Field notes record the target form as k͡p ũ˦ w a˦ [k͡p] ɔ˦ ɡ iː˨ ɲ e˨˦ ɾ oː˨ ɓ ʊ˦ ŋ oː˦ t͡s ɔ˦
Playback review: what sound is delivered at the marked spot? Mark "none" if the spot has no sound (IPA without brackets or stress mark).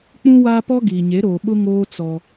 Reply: p